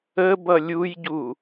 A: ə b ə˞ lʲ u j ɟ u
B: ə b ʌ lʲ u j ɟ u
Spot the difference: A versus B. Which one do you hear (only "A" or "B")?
B